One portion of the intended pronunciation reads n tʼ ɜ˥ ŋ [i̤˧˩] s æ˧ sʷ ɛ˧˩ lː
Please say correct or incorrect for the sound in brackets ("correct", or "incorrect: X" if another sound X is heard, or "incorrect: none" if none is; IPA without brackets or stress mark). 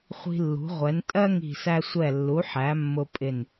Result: correct